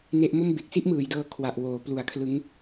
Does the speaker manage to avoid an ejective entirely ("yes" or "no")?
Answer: yes